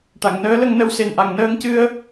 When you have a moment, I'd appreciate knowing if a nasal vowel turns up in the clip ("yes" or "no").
no